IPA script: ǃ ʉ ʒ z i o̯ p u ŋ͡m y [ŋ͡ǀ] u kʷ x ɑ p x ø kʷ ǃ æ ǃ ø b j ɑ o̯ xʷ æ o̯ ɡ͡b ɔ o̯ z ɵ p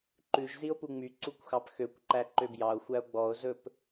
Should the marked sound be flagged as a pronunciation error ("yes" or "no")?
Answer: yes